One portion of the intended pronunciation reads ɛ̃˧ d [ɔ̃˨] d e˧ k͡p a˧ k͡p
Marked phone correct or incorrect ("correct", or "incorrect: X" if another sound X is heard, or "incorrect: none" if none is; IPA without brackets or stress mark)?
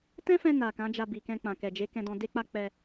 incorrect: ɔ̃˧